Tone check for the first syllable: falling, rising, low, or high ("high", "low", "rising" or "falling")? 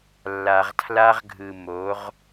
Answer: low